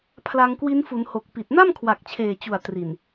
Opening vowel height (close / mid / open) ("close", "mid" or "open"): open